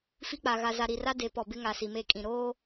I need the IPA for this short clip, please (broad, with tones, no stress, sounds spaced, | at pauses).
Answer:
f i˦ k͡p a˨ ɣ a˨ z a˨ ɾ i˨ r a˦ d e˨˦ p ɔ˨ b ɪ˦ ŋ a˨ s i˨ m e˦˨ kʼ ĩ˨ ɾ oː˦